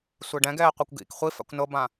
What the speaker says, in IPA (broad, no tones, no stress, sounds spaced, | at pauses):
sʷ e ɖ ɛ̃ ɡ ɛː qʷ e kʷ ɡ ḭ k χʷ i f a̰ kʷ n ɤ b ã